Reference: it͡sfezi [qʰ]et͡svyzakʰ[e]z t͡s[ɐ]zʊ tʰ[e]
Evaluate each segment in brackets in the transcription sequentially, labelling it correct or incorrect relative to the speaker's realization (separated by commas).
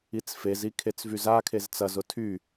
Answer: incorrect, correct, correct, incorrect